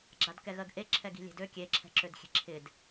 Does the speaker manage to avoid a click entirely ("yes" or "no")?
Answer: no